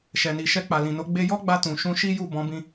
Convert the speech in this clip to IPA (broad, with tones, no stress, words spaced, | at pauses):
ʃɛ˨ni˨ ʃɛ˧k͡pa˨lĩ˨no˨˦ ɡ͡be˧jɔ˦ɡ͡ba˧ tũ˨ʃũ˧ ʃi˦ju˦˨ bɔ̃˨˦bĩ˧